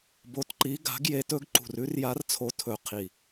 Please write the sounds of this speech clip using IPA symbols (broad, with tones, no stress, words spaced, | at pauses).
bo˨˦tǃi˨˦ ɡa̤˨˦ɡ je˨˦tɵ˨˦ɡ ǃṳ˨˩rʉ˨˦rja˨˦rt͡sʰo˨˦ tʰɵ˨˦qʰi˨˩